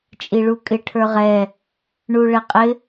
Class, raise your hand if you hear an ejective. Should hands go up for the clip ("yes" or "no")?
yes